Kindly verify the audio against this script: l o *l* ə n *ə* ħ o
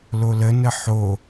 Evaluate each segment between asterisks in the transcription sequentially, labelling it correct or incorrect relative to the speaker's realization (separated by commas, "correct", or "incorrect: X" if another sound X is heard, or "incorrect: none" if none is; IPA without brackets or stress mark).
correct, correct